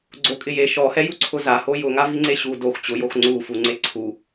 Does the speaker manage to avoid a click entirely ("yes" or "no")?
no